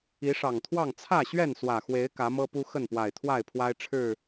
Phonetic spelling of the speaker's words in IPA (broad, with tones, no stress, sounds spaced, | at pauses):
i˨˦ ʂ ɑ˨˩ ŋ t̪ʰ w ɑ˥˨ ŋ t͡sʰ ä˥˨ ɕ ɥ ɛ˥˨ n s w ä˨˩ x w e˨˦ ɪ̯ k ä˨˦ m ɤ˦ p u˦ x ə˥˨ n p w a˨˩ ɪ̯ t̪ʰ w a˥˨ ɪ̯ pʰ w a˦ ɪ̯ ʈ͡ʂʰ ɻ̩˥˨